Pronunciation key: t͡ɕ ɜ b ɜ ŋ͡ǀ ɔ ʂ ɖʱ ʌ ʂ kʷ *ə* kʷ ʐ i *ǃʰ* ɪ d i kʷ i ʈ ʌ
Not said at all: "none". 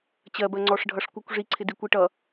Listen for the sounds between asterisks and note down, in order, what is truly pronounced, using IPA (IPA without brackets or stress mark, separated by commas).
ə, ǀʰ